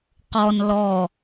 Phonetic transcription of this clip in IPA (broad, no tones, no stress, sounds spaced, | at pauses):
q ɔ n l ɔ